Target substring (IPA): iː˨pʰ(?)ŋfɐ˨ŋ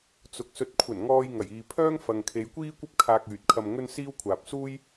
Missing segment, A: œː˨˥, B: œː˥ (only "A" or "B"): B